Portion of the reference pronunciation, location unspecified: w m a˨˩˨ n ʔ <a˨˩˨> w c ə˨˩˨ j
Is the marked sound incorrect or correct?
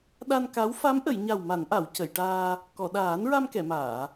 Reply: correct